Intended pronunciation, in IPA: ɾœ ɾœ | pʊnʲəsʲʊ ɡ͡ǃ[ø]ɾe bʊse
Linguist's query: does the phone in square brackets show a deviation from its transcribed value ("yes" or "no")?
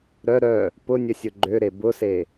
no